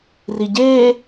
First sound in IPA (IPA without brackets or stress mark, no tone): r